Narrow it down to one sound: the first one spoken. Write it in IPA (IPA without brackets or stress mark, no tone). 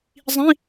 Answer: zˤ